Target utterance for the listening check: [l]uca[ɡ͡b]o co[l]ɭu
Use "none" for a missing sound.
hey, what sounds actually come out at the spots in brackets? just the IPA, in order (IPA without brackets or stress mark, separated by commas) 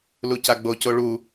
l, ɡ͡b, none